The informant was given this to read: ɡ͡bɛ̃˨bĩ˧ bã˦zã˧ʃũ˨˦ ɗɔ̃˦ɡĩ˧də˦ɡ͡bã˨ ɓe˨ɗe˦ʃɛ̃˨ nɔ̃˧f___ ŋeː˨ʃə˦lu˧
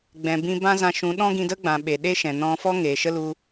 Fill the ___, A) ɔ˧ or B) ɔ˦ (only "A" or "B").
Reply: B